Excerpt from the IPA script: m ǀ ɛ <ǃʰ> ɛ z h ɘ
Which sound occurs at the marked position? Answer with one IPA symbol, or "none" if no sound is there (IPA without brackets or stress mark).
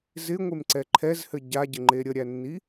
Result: ǃʰ